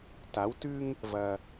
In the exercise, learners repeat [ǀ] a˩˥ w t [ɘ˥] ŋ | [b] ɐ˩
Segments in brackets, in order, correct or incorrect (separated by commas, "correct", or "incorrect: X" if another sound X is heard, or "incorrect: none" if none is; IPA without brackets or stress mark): incorrect: t, incorrect: ʉ˥, incorrect: v